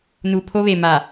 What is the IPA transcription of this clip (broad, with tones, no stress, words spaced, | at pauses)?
nu˨pʰo˦βe˨ ma˨